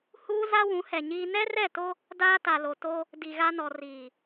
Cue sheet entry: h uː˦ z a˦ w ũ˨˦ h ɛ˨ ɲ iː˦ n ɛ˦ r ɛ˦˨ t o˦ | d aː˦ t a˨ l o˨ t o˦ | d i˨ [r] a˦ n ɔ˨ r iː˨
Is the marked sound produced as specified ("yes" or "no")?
no